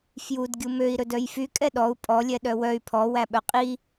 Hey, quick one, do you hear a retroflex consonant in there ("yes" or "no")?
no